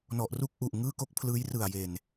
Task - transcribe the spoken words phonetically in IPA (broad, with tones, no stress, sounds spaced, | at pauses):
n ɔ˨˩ ʔ r u˥˩ k̚ ʔ u˨˩ ʔ ŋ ɯː˥˩ k o˥˩ k̚ pʰ l ɯː˦˥ j r ɯ˨˩ a̯ j e˨˩ n